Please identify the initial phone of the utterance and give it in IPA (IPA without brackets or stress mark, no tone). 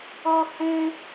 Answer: o